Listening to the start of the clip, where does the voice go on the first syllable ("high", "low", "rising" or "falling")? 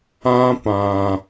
high